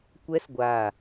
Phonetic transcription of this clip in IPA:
kʷ ɛ s ɡʷ a

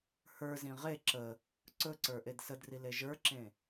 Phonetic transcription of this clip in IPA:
h ə˞ z ĩ ʁ e ǁ ə | ǀ ɵ ǀ ə˞ ʔ e d s ə d r i l e ʒ ə˞ ǁ ẽ

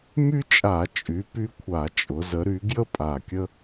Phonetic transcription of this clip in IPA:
m y˦ t͡ʃʼ a˧˩˧ t͡ʃʼ y˩˧ p y˦ kʷʰ a˧˩˧ t͡ʃʼ ʊ˩˧ z ə˩˧ ɾ y˩˧ ɡ j ə˦ pʼ a˨˩ kʲ ə˦

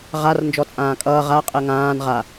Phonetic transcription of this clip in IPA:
ʁ a r n d͡ʒ ɔ t͡sʼ ãː kʼ ʌː ʁ a qʼ ɛ ŋ ãː n ʁ a

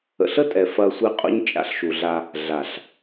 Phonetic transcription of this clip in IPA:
ə̰˨ ɬ ə˦ tʼ ɛ˨ f ɐ˧ sʷ i˧ qʼ o̰˦ ɲ t͡ʃʼ a̰˧ ɬ ʃ u˨ ɮ a˧ | ɮ a˨ ɬ

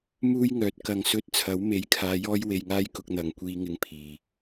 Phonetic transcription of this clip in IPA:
m uː˥ j ŋ œː˨ t̚ k ɐ˨ ŋ s ɵ˧ t̚ t͡sʰ ɐ˨˥ w m e˨˥ j kʰ aː˨˧ j ɔː˥ j w e˧ j ŋ aː˥ j k ʊ˨˥ k̚ n̪ ɐ˨˥ ŋ kʷ iː˥ ŋ ɪ˥ ŋ pʰ iː˨

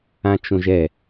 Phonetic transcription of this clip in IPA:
ã t͡ʃ õ ʒ ɛ

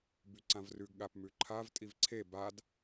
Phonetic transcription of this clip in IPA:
b y ǀ ã v r ʉ ɡ ɠ a p m ʉ ǃʰ a v tʼ i v ǀʰ e b a d

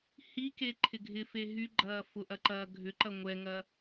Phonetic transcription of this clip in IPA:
h i k e ǃʰ ɪ ɡʱ ɪ f e ɦ y ɡ͡ǃ ɐː f ʊ ʔ ɐ ǃ ɐː ɡʱ ʏ ǃ ɐ ŋʷ ɛ ŋ ɐ

